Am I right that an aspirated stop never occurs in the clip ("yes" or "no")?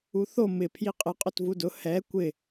no